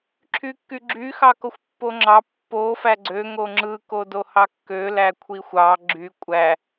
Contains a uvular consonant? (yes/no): no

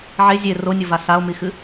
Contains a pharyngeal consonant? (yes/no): yes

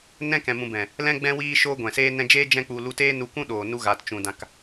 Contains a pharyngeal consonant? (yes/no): no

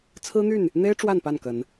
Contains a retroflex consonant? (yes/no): yes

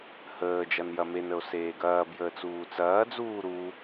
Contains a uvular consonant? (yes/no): no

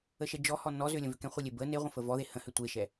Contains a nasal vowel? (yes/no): yes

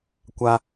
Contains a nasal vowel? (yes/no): no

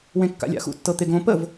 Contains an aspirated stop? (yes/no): no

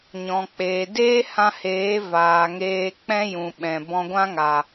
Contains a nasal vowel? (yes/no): yes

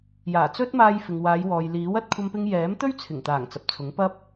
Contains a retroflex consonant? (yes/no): no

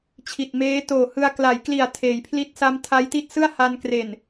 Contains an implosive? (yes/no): no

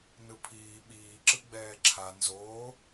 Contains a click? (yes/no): yes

